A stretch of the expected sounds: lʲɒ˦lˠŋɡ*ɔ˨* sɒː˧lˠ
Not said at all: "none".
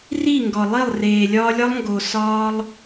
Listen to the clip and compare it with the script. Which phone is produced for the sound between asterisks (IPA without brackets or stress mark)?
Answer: o˨